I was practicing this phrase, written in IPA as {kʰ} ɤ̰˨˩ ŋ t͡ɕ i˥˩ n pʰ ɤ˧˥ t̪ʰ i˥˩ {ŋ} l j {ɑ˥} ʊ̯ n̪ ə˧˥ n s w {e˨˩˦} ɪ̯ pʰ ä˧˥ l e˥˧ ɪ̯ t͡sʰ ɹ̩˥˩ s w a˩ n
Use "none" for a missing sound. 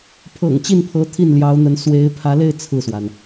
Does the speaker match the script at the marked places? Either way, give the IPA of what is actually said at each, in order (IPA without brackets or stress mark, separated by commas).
pʰ, n, ɑ˧˥, e˧˥